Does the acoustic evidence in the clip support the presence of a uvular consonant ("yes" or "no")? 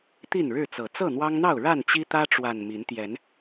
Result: no